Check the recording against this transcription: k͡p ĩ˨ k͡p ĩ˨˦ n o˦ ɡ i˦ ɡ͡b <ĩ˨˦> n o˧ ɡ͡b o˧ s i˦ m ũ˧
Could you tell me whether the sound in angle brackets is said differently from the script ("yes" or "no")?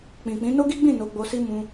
yes